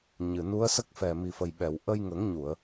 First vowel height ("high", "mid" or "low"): high